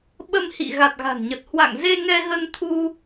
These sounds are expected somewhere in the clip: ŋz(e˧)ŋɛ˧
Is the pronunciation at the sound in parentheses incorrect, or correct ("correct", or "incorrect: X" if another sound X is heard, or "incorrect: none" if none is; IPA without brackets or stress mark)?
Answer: correct